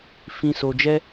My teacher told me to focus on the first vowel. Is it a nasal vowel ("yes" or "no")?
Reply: yes